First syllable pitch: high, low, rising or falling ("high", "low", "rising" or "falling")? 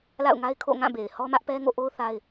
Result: falling